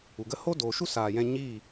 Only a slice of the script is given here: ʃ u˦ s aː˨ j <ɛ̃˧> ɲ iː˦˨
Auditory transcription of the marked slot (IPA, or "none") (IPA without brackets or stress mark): ɛ̃˧